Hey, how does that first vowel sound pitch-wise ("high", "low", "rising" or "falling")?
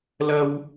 high